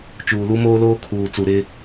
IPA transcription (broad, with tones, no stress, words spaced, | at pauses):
t͡ʃuː˨lu˦moː˦loː˦ kʰuː˨ t͡su˨ɾɪ˦